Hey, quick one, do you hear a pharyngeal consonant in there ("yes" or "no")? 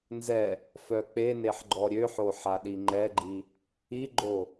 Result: yes